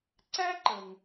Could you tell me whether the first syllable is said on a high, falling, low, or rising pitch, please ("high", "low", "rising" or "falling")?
high